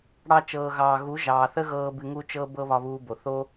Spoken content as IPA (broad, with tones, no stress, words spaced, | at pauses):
ɽɑ˧t͡ʃɤː˨ɣɑː˨ ɣu˨˦ʒɑː˨ θə˦ɣɤː˧ bɨ˧ŋu˦t͡ʃɤ˦ bɤ˦βɒ˧βuː˧bo˨ θo˦